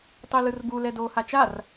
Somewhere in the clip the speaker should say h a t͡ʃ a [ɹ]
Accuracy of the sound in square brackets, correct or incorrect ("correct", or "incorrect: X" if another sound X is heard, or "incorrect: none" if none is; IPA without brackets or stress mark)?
incorrect: r